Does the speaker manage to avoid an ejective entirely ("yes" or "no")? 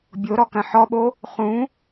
yes